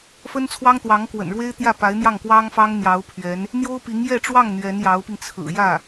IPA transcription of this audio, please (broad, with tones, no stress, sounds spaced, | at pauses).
f ə˥ n t͡sʰ w ɑ˥ ŋ t̪ w ɑ˧˥ ŋ k w ə̰˨˩ n ɻ w e˥ ɪ̯ t̪ j ä˥˩ p a˧˥ ɪ̯ n̪ j ɑ˥˩ ŋ k w ɑ˥ ŋ f ɑ˥ ŋ n̪ j ɑ˧˥ ʊ̯ pʰ ɥ ɛ˧˥ n | n̪ j o˥ ʊ̯ p i˧˥ ŋ j ɛ˥˧ ʈ͡ʂ w ɑ˥˩ ŋ n̪ ɥ ɛ˧˥ n j ɑ˧˥ ʊ̯ p i˧ ŋ t͡sʰ ɹ̩˨˩ j ä˥˩